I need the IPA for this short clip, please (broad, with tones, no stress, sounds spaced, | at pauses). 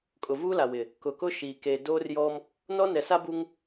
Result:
kʼ ʊ˨ v uː˦ l a˨ w ɪ˨ | k ʊ˨ k ʊ˦ ʃ iː˨ k e˨ d oː˦ r j ɔ˦ m | n ɔ˦ n ɛ˨ s a˦ b u˦ ŋ